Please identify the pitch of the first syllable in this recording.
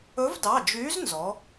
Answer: rising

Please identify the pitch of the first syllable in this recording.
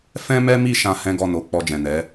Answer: high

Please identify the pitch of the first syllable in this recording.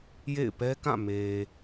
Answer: falling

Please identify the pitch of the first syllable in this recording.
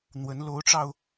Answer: rising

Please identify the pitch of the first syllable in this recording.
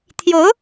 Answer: rising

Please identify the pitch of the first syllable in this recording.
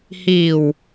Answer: low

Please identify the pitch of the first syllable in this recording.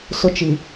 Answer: high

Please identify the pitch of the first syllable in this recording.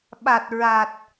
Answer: low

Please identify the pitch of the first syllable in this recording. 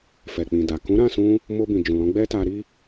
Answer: low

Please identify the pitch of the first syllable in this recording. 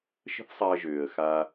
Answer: high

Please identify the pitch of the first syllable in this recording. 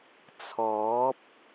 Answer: rising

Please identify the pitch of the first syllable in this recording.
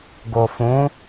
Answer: low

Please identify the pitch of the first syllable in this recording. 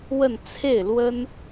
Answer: falling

